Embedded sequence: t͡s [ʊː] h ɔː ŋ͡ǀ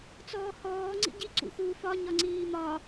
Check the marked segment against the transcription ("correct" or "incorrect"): incorrect